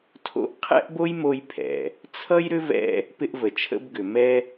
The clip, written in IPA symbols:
tʰo̰˧ʔ qʰɛ̰˥ʔbo˥jmo˧j pʰɛ̰˩ | t͡sʰʌ˥jɾʏ˥vɛ̰˧ | pɪ˧ʔvə˩t͡ʃʰə̰˧bɡʏ˩ mɛ˧

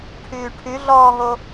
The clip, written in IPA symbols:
ʈʰyːʈʰyɮɔːɦo

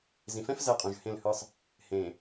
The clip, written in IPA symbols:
zĩ˨fɛ̃˦f zɛ˦qʼũ˨ʒhẽ˦˨lhɯ˦sˤ | hẽ˨

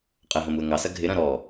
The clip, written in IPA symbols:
qʼɐɦɐ̃muə̯ ŋɑsɐ ɡʱɪɾɐ̃ ɾɔ

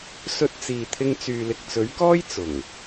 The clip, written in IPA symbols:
sɵ˧t̚t͡siː˨t̪ʰɪ˧ŋ t͡syː˨lɪ˨k̚t͡sɵ˨˥ɥkɔː˥j t͡sʊ˨˩ŋ

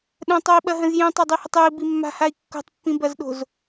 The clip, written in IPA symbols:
ɗə̃tˤoi̯ɓɐɦə̃z jĩtˤadˤihətˤ ei̯bimːa̤hai̯ kːo̤tˤpːĩbɐzɗo̤z

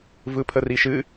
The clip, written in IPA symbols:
vɯpʰəriʃɨ

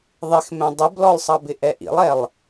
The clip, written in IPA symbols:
ðˤɪxmɛ̃ dˤɪblɔlˠsˤɑbɪ ʔɛʔḭlˠɛlˠ

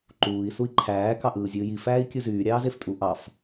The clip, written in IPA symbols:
ǃuːi̯ sui̯ǃʰæː kɑʔɯːzʲɯːji fæːi̯kʲɯzyː ɾʲɑːzeftʼu ʔɑf

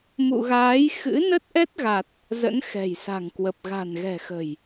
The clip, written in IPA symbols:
mṵ˧˨ɣaː˨˦j xɨ̰˧˥ nə˦˥t̚ʔɛ˦˥t̚ɣa˨˩t̚ | zə̰˧˥nxɛ̤˨˩jsa̤˨˩ŋkwə˨˩p̚ ɣa̤˨˩nɣɛ̤˨˩xə̤˨˩j

